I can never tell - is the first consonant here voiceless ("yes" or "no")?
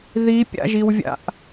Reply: no